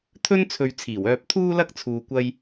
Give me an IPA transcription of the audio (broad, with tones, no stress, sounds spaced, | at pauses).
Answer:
t̪ʰ ɵ˥ n t͡sʰ ɵ˨ ɥ t͡sʰ iː˨˩ w œː˧ p̚ t̪ʰ uː˥ l ɐ˥ k̚ t͡sʰ uː˧ kʷ ɐ˥ j